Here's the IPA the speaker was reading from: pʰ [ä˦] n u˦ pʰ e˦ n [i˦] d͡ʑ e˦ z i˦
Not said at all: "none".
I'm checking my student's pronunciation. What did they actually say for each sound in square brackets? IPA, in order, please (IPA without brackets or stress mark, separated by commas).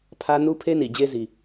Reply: ä˦, i˨